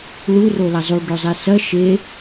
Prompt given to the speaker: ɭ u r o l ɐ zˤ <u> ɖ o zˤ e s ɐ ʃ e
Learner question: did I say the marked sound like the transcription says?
yes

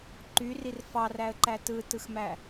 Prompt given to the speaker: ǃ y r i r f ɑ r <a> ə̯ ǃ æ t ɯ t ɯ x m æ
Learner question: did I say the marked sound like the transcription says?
no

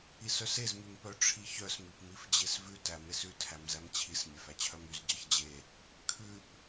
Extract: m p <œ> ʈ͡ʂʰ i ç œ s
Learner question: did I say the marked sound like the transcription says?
yes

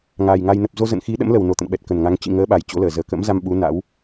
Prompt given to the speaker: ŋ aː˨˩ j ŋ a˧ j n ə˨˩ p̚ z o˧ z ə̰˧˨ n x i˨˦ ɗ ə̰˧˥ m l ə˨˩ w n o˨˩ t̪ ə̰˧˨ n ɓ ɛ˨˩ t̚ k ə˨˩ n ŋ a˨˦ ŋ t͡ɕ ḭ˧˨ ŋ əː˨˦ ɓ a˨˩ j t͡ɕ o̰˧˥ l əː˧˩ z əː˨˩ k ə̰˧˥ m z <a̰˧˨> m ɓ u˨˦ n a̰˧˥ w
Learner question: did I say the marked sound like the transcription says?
no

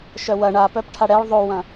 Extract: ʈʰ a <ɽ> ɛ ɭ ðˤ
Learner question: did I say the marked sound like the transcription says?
yes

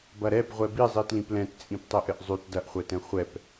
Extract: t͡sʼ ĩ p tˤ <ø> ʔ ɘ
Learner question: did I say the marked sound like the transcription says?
no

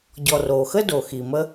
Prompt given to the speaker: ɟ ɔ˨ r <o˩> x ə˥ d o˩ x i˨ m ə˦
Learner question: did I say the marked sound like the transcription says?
yes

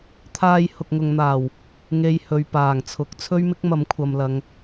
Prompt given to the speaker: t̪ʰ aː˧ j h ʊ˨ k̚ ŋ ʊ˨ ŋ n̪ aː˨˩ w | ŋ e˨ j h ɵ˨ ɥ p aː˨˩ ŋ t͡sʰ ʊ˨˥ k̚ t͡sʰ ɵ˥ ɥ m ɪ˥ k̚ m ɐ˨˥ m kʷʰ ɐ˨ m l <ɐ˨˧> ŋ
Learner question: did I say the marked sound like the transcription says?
yes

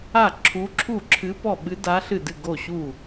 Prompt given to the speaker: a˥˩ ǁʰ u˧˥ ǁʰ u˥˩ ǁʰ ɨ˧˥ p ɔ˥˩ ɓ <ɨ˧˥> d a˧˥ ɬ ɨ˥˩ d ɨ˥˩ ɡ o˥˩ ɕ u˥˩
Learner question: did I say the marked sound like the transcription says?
yes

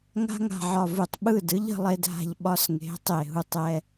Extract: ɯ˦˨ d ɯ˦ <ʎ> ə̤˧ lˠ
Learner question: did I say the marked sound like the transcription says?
yes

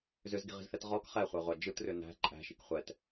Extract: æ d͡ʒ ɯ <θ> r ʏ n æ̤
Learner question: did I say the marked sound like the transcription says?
no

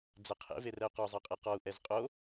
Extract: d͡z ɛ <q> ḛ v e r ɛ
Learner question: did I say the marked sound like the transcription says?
no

